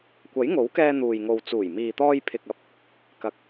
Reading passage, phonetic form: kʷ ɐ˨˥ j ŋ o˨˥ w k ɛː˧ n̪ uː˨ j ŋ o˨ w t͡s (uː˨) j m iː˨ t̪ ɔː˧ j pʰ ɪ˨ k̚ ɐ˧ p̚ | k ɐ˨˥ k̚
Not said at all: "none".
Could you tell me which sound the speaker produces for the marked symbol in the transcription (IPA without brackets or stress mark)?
uː˨˩